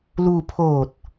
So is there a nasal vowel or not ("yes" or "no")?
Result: no